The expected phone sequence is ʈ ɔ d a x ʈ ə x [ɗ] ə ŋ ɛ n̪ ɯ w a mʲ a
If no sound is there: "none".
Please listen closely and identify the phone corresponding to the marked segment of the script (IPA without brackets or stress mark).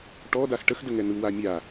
d